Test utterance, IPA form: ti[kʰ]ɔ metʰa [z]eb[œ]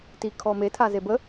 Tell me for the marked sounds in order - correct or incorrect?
correct, correct, incorrect: ə

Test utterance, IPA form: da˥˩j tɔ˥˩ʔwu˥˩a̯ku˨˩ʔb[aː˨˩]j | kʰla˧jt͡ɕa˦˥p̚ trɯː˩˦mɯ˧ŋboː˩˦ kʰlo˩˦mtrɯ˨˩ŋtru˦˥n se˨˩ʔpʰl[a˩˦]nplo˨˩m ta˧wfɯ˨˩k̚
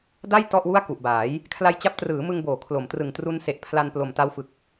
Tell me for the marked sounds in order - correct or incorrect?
incorrect: aː˩˦, incorrect: a˧

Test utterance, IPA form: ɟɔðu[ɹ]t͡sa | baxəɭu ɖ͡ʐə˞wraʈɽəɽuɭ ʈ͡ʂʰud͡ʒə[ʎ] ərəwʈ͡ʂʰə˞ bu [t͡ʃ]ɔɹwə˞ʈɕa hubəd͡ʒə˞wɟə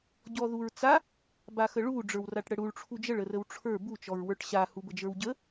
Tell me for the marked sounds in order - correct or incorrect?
correct, incorrect: ɭ, correct

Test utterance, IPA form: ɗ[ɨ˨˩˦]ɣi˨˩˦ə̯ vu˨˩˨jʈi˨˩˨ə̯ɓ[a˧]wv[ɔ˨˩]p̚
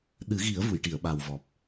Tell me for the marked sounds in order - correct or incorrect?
correct, incorrect: a˨˩, correct

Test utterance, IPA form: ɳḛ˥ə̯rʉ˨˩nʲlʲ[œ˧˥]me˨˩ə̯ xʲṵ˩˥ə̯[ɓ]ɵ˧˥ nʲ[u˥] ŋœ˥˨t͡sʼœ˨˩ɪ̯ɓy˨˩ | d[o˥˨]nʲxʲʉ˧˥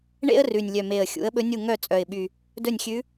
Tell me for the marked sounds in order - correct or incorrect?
incorrect: œ˨˩, correct, incorrect: u˥˨, incorrect: ɵ˥˨

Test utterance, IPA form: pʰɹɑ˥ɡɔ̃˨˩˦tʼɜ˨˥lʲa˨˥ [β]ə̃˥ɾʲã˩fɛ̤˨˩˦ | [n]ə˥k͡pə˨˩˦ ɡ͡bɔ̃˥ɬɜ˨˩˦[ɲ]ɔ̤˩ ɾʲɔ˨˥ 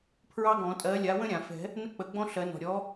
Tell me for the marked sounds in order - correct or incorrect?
incorrect: w, correct, incorrect: n

